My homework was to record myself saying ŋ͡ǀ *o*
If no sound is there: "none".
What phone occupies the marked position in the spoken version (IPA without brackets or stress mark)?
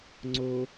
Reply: o